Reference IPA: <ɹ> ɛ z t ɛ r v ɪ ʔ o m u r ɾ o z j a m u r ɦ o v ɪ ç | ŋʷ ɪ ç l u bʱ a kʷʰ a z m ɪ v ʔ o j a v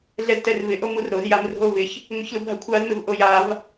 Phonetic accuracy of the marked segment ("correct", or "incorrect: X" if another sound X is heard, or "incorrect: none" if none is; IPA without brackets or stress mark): incorrect: ɮ